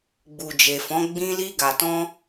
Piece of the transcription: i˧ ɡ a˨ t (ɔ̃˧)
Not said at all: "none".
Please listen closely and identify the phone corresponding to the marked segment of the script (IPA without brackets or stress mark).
ɔ̃˧